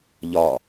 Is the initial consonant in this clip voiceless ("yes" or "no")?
no